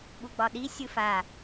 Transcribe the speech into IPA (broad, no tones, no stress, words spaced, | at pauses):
ɓuɡ͡bɒɗi sʲɯfa